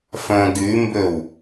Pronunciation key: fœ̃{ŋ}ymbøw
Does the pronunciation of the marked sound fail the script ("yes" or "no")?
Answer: yes